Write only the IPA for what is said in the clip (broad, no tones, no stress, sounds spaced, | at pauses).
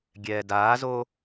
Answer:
ɡʲ ɛː d aː z o